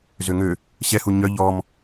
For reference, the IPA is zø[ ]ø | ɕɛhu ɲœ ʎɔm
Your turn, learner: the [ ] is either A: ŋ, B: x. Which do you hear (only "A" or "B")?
A